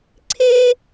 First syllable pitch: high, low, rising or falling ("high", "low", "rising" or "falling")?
high